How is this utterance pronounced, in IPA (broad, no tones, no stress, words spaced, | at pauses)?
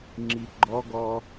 ŋ͡ǁiɡ͡ǃɔɡɔ